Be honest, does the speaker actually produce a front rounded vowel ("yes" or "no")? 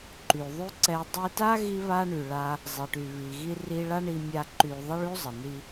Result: yes